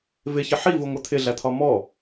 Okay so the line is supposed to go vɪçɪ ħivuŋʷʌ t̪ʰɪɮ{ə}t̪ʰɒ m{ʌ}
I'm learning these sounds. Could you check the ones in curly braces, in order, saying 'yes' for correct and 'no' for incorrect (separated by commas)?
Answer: no, no